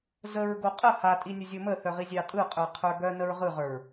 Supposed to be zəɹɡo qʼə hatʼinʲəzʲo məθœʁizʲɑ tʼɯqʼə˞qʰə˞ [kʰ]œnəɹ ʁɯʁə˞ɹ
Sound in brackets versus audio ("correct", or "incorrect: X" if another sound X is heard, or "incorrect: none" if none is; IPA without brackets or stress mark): incorrect: ɡ